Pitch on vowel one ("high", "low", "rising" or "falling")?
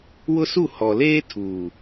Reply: high